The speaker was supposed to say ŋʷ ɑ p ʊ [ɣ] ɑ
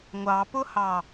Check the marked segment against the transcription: incorrect: h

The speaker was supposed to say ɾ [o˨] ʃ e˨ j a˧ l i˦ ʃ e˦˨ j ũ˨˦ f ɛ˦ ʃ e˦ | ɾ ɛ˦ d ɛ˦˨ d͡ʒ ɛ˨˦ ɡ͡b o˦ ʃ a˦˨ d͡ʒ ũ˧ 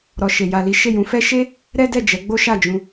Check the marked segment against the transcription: incorrect: ɔ˨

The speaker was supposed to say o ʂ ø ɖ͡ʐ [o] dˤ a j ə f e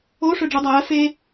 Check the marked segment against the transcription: incorrect: u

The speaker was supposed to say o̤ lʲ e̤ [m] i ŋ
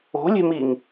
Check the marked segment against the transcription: correct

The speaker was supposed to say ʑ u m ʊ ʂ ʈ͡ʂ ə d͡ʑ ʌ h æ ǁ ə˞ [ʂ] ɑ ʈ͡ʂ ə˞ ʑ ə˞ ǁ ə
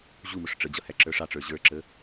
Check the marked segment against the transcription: correct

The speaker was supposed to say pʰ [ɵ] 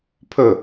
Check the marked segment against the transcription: correct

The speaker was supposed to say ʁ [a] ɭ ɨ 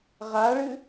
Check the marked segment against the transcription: correct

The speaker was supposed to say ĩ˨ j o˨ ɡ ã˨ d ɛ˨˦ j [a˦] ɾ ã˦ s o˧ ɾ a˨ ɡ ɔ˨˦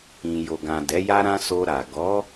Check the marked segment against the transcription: correct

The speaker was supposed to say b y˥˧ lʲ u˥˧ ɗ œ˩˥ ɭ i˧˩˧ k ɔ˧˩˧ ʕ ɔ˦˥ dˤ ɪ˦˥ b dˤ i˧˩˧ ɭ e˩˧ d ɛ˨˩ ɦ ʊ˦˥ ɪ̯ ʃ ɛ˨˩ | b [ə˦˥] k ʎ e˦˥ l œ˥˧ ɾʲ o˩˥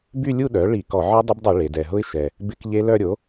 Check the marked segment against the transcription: incorrect: ɪ˦˥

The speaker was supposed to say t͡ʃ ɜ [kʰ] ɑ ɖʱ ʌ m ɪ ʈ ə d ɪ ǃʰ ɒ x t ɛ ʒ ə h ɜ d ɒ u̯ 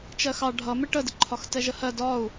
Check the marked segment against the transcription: incorrect: x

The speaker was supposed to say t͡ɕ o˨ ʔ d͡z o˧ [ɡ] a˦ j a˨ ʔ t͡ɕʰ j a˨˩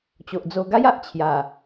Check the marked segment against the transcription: correct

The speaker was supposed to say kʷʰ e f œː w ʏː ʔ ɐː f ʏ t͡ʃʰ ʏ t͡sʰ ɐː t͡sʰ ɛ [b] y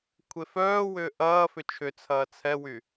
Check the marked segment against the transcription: incorrect: w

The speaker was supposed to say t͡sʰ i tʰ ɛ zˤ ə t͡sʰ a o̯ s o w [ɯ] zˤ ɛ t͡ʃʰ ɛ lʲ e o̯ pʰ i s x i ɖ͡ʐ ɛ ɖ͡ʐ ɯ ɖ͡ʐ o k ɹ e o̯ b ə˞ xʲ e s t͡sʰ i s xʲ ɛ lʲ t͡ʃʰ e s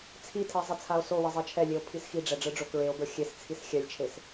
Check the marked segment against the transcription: incorrect: ə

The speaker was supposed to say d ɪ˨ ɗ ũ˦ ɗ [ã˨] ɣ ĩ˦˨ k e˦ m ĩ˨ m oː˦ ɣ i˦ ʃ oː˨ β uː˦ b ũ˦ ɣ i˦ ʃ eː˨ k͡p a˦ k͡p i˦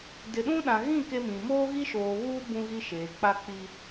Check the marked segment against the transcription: correct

